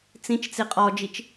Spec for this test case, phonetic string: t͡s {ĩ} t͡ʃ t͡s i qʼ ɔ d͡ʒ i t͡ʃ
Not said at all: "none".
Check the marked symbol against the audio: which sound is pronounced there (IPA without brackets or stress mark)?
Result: ĩ